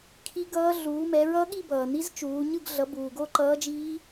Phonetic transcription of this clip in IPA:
kʰ i˦˥ ɡ ʌː˦˥ ɮ uː˨˦ m ɛ˨˦ ɹ ʌ˦˥ ɠ i˥˧ b ʌː˨ n i˦˥ z t͡ʃ uː˨˦ ɲ ɯ˥˧ ɡ ɮ ʌ˨˦ b uː˨ ɡ o˥˧ ǃ ʌː˦˥ d͡ʒ iː˦˥

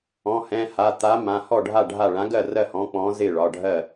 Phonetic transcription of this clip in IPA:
ɔ̃˩˧˩ h ɛ̃˩˧˩ h a˩˧˩ t̪ a˨˥ m ã˩˧˩ h ɔ˥˩ ɖʱ a˥˩ ɖʱ a˥˩ ɭ ã˨˥ ɡ ɜ˥˩ r ɜ˥˩ h ɔ̃˨˥ k͡p ɔ̃˨˥ z ɪ˥˩ ɭ ɒ˩˧˩ ɖʱ ɜ˥˩

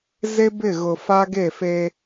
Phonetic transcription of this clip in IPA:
z e˦ b ɪ˦˨ ɣ ʊ˨ f a˦ ɡ e˦˨ f e˦

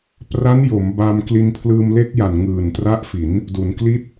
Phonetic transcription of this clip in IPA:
p r a˦˥ n j o˩˦ m b a˧ m k l i˧ n pʰ l ɯː˧ m l e˦˥ k̚ j a˨˩ n ŋ ɯː˨˩ n t r a˦˥ ʔ f i˩˦ n | d u˩˦ n k l i˥˩ t̚

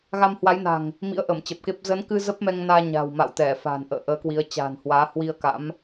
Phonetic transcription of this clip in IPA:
ɣ a˧ m h w a˨˦ j n a̤˨˩ ŋ | m ḭ˧˥ ə̯ ʔ ə˧˩ m t͡ɕ ə˨˩ p̚ k e˦˥ p̚ z ə˨˦ n k ɨ˧ z ə˦˥ p̚ m ɛ˧ ŋ n aː˧ ɲ a̤˨˩ w m a̰˧˨ w t̪ ɛ˧˩ f a̤˨˩ n ʔ ə̰ː˧˨ ʔ əː˨˦ k w i˨˦ ə̯ t͡ɕ a̤ː˨˩ n h w aː˨˦ h w i˧ ə̯ k a̰˧˥ m

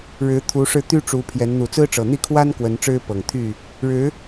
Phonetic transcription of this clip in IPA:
ɻ ɻ̩˨˦ t̪ʰ u˨˦ ʂ ɻ̩˧ t̪ y˦ ʈ͡ʂ u˨˦ pʰ j ɛ˨˦ n n̪ u˨˩ t͡s ɹ̩˦ ʈ͡ʂ ɤ˨˩ n̪ i˥˨ kʰ w a˦ n k w ə˨˦ n ʈ͡ʂ ɻ̩˦ p ɤ˨˩ ŋ t̪ʰ y˥˨ | ɻ ɻ̩˨˦

